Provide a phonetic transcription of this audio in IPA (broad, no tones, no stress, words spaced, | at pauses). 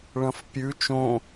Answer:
ɭɐ̃fpʲʉ t͡ʃõ